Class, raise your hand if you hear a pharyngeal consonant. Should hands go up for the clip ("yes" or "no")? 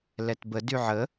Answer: yes